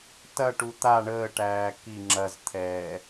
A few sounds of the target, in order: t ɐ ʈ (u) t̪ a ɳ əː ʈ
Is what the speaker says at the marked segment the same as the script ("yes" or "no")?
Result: yes